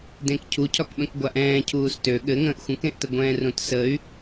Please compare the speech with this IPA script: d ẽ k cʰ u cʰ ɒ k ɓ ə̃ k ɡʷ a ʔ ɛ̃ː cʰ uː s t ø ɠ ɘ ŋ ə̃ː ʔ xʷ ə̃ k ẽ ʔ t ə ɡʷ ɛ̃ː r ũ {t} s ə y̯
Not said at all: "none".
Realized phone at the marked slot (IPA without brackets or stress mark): t